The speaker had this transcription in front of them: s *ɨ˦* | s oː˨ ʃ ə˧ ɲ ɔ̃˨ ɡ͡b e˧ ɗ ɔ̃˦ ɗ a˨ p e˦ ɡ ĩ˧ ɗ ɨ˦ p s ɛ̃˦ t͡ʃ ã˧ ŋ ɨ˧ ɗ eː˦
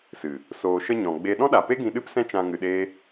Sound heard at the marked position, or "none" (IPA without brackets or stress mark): ɨ˨